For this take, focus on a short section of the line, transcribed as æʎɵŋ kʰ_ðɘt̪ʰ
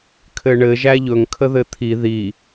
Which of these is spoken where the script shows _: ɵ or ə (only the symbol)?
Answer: ə